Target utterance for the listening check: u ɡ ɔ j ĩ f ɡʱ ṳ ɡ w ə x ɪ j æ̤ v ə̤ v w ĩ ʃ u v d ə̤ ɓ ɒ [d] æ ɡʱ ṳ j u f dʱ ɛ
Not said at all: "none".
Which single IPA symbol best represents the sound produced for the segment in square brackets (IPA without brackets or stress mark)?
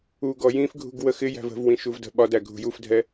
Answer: d